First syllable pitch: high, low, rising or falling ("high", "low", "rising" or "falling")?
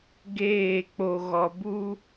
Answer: falling